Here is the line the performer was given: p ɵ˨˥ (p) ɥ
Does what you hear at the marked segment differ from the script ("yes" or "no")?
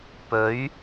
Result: yes